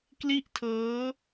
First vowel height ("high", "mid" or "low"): high